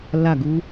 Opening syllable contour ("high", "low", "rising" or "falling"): falling